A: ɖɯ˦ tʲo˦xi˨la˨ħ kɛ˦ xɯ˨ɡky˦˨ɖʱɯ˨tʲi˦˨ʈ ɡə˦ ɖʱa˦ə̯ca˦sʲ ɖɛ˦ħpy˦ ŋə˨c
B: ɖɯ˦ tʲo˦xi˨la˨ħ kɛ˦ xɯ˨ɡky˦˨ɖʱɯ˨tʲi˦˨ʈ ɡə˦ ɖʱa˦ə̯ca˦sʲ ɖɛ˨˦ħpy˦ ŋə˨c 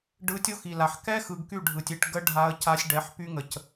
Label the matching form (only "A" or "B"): B